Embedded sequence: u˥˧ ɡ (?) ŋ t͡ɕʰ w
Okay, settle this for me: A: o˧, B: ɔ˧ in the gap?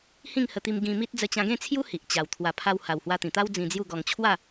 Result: B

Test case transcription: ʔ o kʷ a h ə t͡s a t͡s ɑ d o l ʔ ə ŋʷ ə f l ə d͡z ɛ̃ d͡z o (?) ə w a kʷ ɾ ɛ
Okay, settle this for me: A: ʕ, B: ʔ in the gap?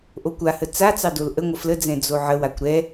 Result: A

